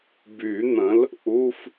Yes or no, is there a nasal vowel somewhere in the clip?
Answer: yes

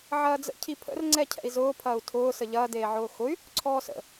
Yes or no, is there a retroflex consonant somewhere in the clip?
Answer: no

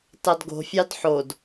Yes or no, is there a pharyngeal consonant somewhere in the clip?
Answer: yes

